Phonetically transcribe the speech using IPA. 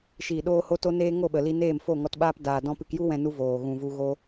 ʃ iː˨ ɗ oː˧ h o˧ t o˦ n eː˦ ŋ o˦˨ ɓ ə˨ l i˧ n eː˦˨ m f o˦˨ ŋ ɔ˧ t ɓ aː˦ p d aː˨ d ɔ̃˦ p ɨ˧ k j u˦ w ɛ̃˧ n u˧ v oː˨ ɣ ũ˨ v u˧ ɣ o˧

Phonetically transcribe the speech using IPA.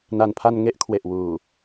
n a˨˩ n pʰ a˧ n ŋ e˦˥ ʔ kʰ w e˨˩ ʔ w uː˨˩

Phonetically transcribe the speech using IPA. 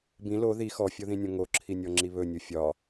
b ĩ l o ð i x ɔ fʲ o ð ĩ nʲ õ ŋ o ǁʰ i nʲ ɔ ŋ͡ǁ i β ɵ nʲ u fʲ ɒ

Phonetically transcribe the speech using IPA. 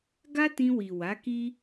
ɡ a˦ t ĩ˧ w i˨ w a˨˦ k i˦

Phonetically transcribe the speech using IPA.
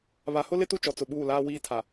β a˨ h ʊ˦ l ɪ˦ t u˦ t͡ʃ ɔ˨ t͡s ʊ˨ ɓ uː˦˨ l aː˦ w iː˦ tʰ a˨

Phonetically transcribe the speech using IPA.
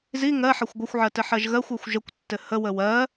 z i ŋ ɜ ħ ʌ xʷ ɡʷ ə xʷ ʕ ɜ t ɘ ħ ɜ ʒ ɣ ɜ xʷ ɜ xʷ ʒ ə kʷ tː ɘ h ə w ə w ɜ

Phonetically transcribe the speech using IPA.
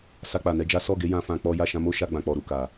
s a˧ k͡p a˨ n ɛ˧ d͡ʒ a˦ s ɔ˦˨ ɡ e˨˦ j ã˧ f ã˧ k͡p ɔ˦ j a˦˨ ʃ ã˧ m o˦ ʃ a˧ ɡ͡b ã˨ k͡p ɔ˨ ɾ u˨ k a˨

